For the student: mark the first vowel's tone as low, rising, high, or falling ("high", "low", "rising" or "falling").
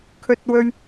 high